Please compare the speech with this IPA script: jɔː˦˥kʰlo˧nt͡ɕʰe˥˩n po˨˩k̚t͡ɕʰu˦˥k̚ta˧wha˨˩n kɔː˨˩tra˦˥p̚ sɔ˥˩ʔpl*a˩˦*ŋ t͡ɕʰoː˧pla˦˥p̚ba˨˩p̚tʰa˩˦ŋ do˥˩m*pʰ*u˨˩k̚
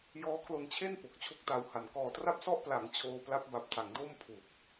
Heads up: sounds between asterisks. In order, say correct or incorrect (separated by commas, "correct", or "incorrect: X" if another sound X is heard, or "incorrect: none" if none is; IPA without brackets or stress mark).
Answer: correct, correct